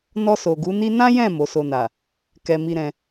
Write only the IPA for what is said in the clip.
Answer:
n ɔ˧ s o˨ ɡ u˨˦ n i˦ n ã˦ j ɛ̃˦˨ m o˨˦ s o˧ n a˨ | k ɛ˧ m i˧ ɾ ɛ̃˧

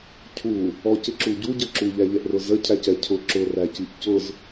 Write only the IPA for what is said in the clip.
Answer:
cʰ u | ɔ c ɪ ǁ u ɟ u ɟ ə ǁ u ʎ æ ʎ ɛ ʔ r ʊ z ə cʰ æ c ɛ cʰ ʊ ǁ ʊ r æ c i ʔ c ʊ z

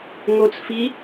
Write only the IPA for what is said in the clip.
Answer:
ŋ o t͡s f i

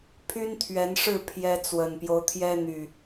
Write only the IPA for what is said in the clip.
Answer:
pʰ y˦ n t̪ʰ ɥ ɛ˨˦ n ʂ ɻ̩˥˨ pʰ j ɛ˦ t͡s w ə˨˩ n p j o˦ ʊ̯ t̪ʰ j ɛ˦ n̪ y˨˩

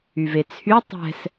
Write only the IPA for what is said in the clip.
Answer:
y v e t͡sʰ y tˤ ɛ̤ s

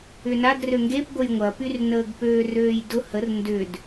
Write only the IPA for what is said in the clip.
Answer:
ʏ n a d r ø ŋ ɡ e p ɡʷ ə j ŋʷ ɐ p y r n əː ɡ p øː r øː j d ʊ h ə r n d ʏ d

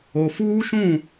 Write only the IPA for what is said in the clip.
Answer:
o˨ f uː˦ ʃ ũ˦˨

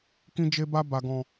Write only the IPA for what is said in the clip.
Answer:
k ĩ˧ d͡ʒ e˧ b a˧ b a˨ ɡ ɔ̃˨

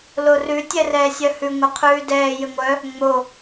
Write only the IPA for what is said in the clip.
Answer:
l o r ʉ tʲ ɛ r ɛː sʲ œ h ʉ ŋʷ ɛ qʰ ʉː d ɛː j ɘ ŋʷ œ | ŋ͡m o

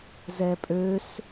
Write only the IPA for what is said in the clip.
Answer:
z ɛ pʼ ø s

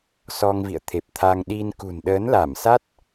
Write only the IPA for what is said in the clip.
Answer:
s ɔ˧ ŋ v ḭ˧˨ ə̯ t̪ʰ e˨˩ p̚ t̪ʰ a˧ ŋ ɗ i˧ n k ṳ˨˩ n ɗ əː˨˦ n l a˧˩ m s a˦˥ t̚

